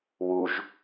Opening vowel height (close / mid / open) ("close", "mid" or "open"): close